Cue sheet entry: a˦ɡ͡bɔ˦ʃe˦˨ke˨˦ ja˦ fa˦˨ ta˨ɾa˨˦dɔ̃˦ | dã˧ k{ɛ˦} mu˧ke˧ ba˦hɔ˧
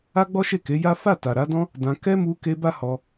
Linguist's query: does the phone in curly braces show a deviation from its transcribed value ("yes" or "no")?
no